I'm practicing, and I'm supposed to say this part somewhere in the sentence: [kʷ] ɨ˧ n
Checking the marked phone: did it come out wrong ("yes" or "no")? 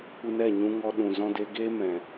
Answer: no